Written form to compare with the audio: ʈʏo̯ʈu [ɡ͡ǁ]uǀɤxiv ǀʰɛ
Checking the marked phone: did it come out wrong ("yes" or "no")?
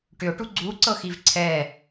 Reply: yes